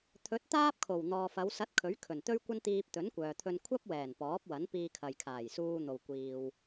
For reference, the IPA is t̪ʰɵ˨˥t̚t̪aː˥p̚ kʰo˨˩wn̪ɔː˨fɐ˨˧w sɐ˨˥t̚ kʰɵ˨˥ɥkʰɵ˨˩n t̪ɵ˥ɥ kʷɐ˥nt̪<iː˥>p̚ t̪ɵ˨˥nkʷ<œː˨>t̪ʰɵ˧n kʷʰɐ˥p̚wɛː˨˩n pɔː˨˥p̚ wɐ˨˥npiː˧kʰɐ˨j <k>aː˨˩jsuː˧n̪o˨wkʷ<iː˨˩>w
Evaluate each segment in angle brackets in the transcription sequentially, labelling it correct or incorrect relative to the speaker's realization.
incorrect: iː˧, correct, incorrect: kʰ, incorrect: iː˨

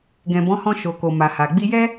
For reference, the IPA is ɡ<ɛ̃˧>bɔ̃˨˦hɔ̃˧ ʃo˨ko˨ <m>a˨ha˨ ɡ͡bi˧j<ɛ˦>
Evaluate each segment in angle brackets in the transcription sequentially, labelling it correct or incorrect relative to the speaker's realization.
incorrect: ɛ̃˨, correct, correct

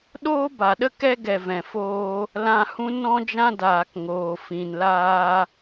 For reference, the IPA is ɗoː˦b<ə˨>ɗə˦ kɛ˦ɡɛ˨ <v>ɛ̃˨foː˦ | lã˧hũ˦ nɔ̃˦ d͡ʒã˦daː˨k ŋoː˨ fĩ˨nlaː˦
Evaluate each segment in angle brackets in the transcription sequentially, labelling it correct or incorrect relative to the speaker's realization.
incorrect: a˨, correct

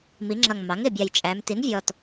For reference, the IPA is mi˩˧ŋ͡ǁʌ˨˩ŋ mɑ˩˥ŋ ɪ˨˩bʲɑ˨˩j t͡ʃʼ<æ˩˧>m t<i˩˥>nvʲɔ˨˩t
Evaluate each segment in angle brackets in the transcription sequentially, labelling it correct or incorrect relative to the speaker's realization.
correct, correct

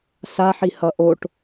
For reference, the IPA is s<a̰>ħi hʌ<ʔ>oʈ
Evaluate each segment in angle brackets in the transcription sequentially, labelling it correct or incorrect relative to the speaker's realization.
incorrect: a, correct

